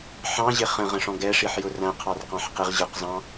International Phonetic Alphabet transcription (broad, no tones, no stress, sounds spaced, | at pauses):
ħ ɑ̃ ʑ ɪ χ ə̃ ʁ ə̃ ʂ ɔ̃ ɡ ɛ ʂ i ħ j ʊ r æ̃ qʰ ɑ r q ɑ̃ ħ q ɪ ʁ ʑ ə˞ q z ɑ̃